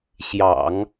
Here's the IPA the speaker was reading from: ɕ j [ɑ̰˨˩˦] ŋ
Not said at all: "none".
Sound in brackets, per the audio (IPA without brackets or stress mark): ɑ̰˨˩˦